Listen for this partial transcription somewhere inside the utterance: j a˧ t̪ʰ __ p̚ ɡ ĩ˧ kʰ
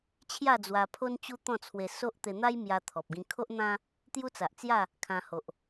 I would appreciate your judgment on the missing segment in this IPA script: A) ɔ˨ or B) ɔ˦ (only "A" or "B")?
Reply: A